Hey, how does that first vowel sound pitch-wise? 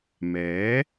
rising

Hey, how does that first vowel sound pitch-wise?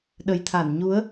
low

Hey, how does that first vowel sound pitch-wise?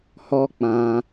high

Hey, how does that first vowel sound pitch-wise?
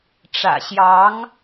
low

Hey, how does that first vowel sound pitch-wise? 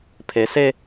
low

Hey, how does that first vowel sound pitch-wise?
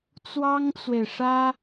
high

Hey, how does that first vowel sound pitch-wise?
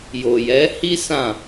low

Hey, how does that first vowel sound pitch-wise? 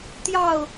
falling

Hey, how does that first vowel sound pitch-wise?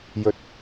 rising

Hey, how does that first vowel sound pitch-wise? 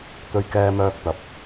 high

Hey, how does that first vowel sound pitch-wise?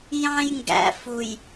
high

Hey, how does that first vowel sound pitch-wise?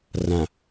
low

